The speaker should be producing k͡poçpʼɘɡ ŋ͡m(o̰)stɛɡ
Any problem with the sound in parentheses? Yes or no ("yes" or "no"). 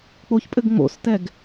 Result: no